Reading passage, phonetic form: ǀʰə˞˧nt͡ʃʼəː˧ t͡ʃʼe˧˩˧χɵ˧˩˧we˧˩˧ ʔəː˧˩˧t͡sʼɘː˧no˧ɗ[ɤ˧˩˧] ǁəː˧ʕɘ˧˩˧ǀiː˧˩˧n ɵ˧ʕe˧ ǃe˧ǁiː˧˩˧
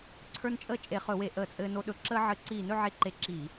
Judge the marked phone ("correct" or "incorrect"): incorrect